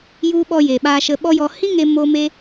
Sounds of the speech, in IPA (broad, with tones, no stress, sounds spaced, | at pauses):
j u˧ ɓ ɔ˧ j e˨ ɓ aː˧ ʃ ə˧ ɓ ɔ˦ j ɔ˧ h ĩ˦ ŋ e˧ m o˧ m e˧